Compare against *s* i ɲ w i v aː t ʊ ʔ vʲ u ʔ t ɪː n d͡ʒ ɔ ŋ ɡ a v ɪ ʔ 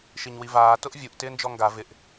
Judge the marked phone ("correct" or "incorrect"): incorrect